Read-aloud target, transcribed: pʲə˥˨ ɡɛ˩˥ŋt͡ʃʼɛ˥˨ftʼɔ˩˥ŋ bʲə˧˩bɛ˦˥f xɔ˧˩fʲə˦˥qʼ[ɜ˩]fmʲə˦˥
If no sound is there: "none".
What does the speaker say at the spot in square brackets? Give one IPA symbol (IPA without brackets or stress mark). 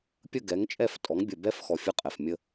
ɛ˩